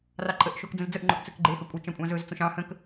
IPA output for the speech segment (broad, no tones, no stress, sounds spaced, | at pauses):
r ɑ ǃʼ ə ʔ ʃ o k d͡z ə̃ z d͡z ə ʔ ŋ͡ǃ o ʔ t͡s ɵ k ɡ͡ǃ e h ɵ kʷʼ ə t͡ʃ ɑ̃ kʷʼ ɑ̃ z ɵ z t͡s õ ʃ ɑ̃ h ə̃ k